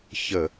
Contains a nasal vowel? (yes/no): no